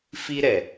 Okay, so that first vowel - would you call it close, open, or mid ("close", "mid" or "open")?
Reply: close